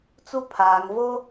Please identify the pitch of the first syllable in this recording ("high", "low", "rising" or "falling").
high